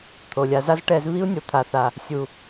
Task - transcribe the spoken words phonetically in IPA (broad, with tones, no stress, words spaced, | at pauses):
t̪ʰo˨lʲa˧ za˦zʈɛ˧z βi˦u̯nʲo˨t̪ʰa˨θa˨ | sʲu˨